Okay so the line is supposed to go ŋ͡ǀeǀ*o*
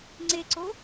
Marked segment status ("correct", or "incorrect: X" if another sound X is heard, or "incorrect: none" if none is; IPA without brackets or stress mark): correct